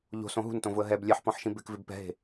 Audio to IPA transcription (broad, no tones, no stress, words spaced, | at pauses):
ʎo̤sõ ɦṳntõvʊə̯ ɦɛb lʲɛħpɔ̃ħʃĩ bɪkvɪb pɛ̤ɦe̤